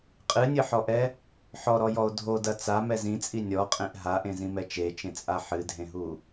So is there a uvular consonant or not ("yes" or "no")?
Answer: yes